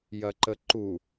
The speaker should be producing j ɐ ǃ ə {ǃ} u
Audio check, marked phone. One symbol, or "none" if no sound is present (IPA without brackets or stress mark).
ǃ